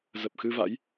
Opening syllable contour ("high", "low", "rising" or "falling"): low